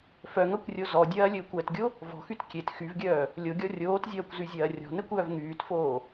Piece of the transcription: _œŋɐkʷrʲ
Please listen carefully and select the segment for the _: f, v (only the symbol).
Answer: f